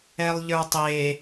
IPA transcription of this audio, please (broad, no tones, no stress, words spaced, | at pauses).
ɛlˠʎə˞tˤe